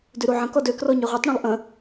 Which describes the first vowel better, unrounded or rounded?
rounded